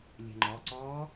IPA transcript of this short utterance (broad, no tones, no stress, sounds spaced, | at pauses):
lʲ ɛ̤ ŋ͡ǃ ɔ ǀ ɔː